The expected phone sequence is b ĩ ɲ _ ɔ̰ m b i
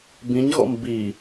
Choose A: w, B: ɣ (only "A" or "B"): B